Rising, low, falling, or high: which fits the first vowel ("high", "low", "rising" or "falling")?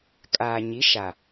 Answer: low